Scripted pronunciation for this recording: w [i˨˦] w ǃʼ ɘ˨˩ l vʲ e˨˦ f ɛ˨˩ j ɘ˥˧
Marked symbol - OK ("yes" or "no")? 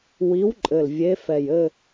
yes